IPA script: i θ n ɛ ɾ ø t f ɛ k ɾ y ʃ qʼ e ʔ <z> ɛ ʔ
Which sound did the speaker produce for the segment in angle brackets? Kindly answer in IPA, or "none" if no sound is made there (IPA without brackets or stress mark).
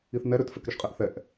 θ